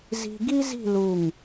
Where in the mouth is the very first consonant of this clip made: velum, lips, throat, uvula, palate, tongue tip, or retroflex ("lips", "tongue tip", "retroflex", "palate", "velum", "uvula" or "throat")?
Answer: tongue tip